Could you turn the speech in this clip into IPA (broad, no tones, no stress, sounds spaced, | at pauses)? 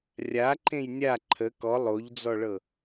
rʲ a ǃ ẽ j nʲ a ǃʰ ə k ɔ lˠ o ʎ d͡z ɔ ɭ ɤ